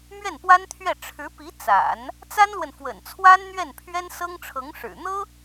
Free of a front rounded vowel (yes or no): yes